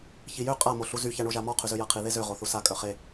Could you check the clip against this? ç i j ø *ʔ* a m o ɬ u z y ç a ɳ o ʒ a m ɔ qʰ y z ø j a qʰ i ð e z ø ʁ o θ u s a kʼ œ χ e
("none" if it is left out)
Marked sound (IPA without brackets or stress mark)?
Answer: qʼ